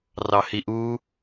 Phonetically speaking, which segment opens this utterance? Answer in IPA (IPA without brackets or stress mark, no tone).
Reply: r